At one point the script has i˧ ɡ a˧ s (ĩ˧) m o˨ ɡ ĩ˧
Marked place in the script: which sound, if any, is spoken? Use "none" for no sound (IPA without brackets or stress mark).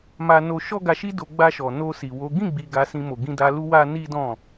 ĩ˧